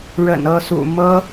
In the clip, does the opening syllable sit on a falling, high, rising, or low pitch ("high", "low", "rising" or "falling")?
low